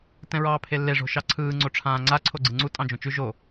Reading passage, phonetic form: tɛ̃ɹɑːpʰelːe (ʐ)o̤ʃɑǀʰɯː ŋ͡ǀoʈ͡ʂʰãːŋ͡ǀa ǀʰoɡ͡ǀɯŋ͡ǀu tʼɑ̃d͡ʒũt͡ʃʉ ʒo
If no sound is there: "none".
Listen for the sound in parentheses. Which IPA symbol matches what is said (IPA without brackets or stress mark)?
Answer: ʐ